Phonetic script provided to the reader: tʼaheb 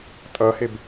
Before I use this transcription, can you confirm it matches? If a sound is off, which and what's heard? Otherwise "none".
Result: a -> ʌ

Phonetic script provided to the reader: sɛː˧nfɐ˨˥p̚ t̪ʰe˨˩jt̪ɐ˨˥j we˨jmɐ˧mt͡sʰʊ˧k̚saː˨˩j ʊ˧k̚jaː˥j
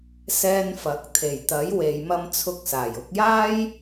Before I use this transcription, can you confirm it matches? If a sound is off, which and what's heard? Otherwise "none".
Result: p̚ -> k̚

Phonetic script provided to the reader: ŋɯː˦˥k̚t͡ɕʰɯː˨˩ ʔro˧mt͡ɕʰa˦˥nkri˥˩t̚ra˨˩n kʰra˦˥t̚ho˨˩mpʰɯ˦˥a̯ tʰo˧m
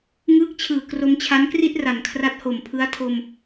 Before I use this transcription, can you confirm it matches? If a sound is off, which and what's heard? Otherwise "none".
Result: ʔ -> k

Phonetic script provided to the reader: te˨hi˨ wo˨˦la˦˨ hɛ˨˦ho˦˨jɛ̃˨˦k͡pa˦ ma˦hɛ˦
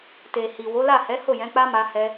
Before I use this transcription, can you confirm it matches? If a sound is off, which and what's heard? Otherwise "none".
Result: none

